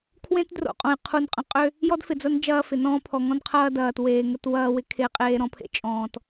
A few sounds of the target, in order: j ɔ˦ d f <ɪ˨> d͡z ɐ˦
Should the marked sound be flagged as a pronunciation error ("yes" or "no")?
no